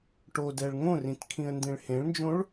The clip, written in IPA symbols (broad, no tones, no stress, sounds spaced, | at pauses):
ʈ o d ɛ ɭ ŋ õ r ĩ t kʰ ĩ ə̯ n d ẽ ɭ h ẽ ɭ n d͡ʒ õ ɭ